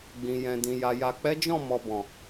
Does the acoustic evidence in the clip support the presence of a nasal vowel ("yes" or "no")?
yes